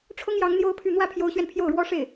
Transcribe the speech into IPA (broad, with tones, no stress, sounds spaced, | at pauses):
ʈ͡ʂʰ ʊ˥ ŋ j ɑ˧˥ ŋ n̪ j o˥ ʊ̯ pʰ y˥˧ n̪ w ä˥˩ pʰ j o˧˥ ʊ̯ ɕ ɥ ɛ˧ n pʰ j o˥˩ ʊ̯ ɻ w ɔ˥ ʂ e˥˩ ɪ̯